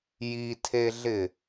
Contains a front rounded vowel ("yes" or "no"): no